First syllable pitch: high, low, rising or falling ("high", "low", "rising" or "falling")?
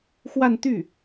falling